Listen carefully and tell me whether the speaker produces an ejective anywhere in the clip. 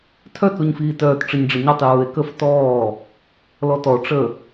no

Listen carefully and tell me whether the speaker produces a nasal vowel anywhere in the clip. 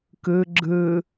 no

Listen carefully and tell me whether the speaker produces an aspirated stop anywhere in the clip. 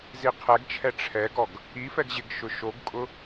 yes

